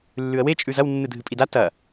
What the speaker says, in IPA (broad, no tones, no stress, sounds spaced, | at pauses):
lː ʉ ə̯ w e t͡ʃʼ ʉ z ɐ w nː ɨ dʱ ɨ pʼ i d a t ɐ